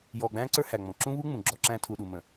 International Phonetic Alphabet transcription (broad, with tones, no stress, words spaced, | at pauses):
jɔː˨ɡ͡bæ̃ː˦ǀə˞˦ hæ˨ŋ͡mɔ̃˨ ǁũ˦βu˦ŋ͡mũ˨ ɡ͡ǁɔ˦ǁæ̃˦ tʰu˨ɗu˨mə̃˨